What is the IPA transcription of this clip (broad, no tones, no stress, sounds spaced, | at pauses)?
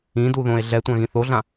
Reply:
ĩ d u ð õ e̯ ɮ ɛ tʷ ã ɣ ĩ θ o ɮ ã